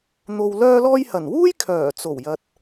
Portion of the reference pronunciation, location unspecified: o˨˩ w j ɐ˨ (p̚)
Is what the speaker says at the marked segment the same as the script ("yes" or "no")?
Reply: no